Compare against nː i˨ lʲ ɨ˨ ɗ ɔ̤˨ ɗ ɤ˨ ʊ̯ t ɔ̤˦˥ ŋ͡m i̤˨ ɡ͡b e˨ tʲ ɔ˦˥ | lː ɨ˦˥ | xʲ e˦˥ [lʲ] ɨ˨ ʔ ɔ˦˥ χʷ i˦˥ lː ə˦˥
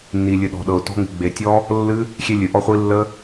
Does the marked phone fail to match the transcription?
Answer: no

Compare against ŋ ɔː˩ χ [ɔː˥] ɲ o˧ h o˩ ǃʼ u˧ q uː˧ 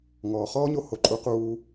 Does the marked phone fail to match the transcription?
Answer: no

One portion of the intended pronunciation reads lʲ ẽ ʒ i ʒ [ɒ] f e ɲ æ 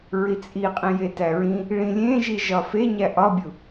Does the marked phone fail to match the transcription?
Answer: no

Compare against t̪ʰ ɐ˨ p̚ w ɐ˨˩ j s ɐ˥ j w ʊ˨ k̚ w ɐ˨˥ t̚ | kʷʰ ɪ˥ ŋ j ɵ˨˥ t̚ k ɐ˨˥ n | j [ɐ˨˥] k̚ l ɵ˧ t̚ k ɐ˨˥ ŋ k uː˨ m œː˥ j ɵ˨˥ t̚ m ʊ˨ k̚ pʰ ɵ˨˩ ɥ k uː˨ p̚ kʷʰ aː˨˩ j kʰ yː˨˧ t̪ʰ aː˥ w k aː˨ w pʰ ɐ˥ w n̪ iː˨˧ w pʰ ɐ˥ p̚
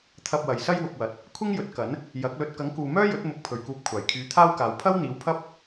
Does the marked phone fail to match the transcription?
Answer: no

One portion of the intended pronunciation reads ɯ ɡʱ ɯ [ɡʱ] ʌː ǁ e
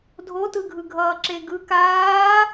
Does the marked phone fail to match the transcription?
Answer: no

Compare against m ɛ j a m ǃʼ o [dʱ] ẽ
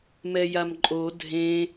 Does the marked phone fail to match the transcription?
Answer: no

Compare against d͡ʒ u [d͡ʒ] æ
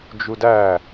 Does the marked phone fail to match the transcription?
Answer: yes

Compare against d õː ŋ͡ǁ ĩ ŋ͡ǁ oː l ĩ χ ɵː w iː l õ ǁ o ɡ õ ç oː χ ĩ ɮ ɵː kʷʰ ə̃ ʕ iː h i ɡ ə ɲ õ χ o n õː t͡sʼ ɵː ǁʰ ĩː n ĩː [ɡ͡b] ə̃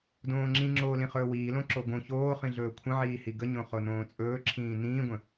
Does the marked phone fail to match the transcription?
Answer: yes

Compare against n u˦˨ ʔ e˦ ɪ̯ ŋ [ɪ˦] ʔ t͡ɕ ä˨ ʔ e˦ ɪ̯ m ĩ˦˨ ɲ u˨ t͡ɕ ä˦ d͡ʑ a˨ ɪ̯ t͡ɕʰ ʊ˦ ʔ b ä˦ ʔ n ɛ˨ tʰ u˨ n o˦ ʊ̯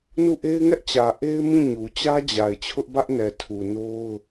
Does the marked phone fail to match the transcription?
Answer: yes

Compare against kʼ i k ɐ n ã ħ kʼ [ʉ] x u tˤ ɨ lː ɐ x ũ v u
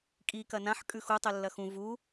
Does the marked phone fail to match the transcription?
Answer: no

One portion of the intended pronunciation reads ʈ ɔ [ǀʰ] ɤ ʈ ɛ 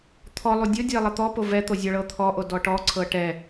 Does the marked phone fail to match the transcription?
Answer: no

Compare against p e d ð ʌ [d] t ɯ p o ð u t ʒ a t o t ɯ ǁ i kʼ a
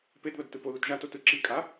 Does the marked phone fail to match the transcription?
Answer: no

